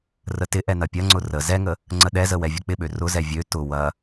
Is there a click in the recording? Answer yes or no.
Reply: yes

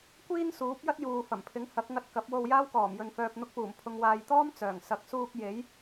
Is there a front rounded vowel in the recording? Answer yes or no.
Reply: yes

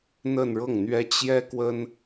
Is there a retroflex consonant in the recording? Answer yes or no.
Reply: yes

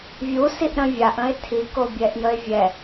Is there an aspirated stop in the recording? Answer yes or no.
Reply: yes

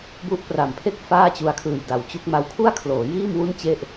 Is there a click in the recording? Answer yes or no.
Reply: no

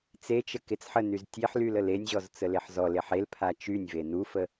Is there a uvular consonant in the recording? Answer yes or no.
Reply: no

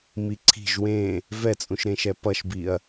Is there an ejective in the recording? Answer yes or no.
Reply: yes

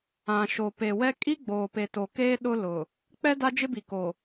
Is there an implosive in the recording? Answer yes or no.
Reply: yes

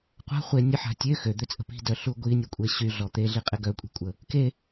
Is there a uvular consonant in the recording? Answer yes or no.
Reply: yes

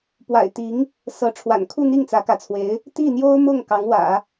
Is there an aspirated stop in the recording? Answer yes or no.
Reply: yes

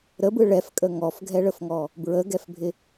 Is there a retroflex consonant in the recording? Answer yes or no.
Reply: yes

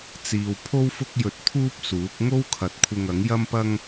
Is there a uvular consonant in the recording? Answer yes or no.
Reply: no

